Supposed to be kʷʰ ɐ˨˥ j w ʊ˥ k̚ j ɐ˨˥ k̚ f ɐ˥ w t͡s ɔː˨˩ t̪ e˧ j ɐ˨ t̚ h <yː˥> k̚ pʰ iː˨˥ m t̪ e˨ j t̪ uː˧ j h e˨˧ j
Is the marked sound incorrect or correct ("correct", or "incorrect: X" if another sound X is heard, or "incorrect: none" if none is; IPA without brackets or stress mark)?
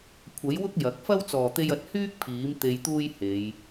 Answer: correct